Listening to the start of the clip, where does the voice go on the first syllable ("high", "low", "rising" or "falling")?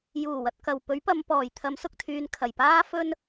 low